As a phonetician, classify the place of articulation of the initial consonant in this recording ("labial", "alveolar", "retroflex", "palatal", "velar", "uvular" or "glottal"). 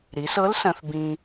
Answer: alveolar